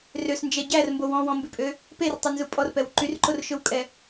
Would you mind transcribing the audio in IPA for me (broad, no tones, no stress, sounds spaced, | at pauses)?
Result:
r ø s n d͡ʒ ɛ ɟ æ r m b o w ɔ̃ w ɔ̃ m b ʉ pʼ ø | p e r tˤ ø n z u pʼ ɔ r p ɛ w ǃ y r ǃ o r ʃ ɵ w kʼ ɛ